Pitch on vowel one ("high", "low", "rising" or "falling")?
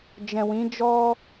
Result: low